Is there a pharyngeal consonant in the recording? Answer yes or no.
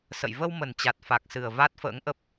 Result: no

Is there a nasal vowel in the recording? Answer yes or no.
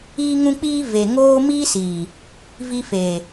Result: yes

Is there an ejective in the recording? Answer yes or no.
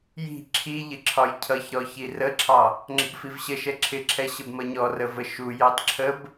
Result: no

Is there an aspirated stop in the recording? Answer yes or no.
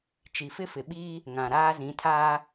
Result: yes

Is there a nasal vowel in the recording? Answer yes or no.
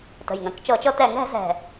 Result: yes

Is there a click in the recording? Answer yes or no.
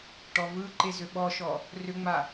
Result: yes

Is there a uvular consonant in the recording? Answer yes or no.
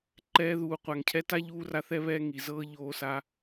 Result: yes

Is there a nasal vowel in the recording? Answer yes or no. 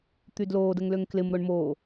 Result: no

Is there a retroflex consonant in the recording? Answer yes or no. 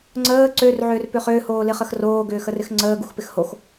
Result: no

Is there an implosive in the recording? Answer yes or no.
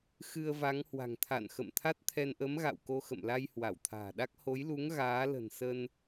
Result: yes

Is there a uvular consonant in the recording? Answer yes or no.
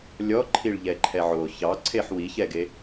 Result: no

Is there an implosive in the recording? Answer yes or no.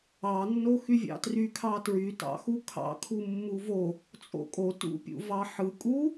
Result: no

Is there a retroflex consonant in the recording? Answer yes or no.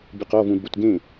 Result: no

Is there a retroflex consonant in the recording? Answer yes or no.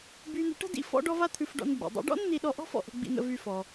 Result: yes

